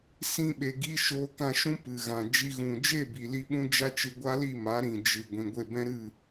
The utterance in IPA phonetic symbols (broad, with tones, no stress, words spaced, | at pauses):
sĩ˧ ɓe˨ɡi˧ ʃoː˧kã˧ʃũ˦ pɨ˨ɣã˨ d͡ʒi˧ɣũ˨ d͡ʒe˦˨bi˨li˧ɓũ˧ d͡ʒa˦t͡ʃɨ˧ ɡʷa˦li˦˨ ma˨˦ɾĩ˨ d͡ʒɨ˨ ɡʷĩ˨ɡʷe˦˨bɛ̃˦ ɾɨ˦˨